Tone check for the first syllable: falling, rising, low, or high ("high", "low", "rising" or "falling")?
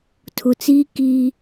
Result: low